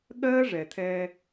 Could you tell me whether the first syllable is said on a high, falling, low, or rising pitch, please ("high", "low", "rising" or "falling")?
high